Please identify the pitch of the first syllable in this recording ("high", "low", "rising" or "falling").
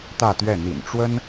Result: falling